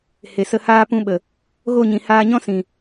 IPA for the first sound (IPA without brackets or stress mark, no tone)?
h